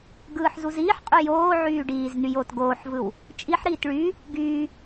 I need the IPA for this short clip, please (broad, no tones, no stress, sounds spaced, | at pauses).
ɡ ɯː ħ z u z iː ħ qʼ y j oː ʕ yː ɖ iː z n y j oː t ɡ oː ħ v ɯ w | t͡ʃʼ i ħ ɾ iː t ɭ y | ɡ yː